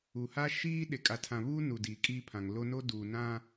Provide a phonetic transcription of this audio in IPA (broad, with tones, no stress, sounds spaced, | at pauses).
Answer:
u˨ h a˦ ʃ iː˦ ɗ e˨ kʼ a˨ tʰ ã˨ β uː˦ n u˨ d iː˨ kʼ iː˦ pʰ ã˨ ŋ l o˦ n o˦ d uː˨ n ã˦